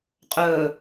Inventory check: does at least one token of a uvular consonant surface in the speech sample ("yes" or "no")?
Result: yes